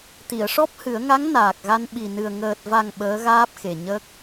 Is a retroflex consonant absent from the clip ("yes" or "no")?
no